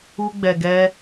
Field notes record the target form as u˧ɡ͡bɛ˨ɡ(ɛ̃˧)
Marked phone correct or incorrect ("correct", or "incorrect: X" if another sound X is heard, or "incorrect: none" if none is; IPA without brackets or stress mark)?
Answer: incorrect: ɛ˧